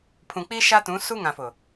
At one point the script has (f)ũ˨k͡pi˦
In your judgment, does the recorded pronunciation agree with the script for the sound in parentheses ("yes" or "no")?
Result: no